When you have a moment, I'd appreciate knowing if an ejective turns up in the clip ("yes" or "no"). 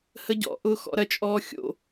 yes